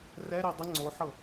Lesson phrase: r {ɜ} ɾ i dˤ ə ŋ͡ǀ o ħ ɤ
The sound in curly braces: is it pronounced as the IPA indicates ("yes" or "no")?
no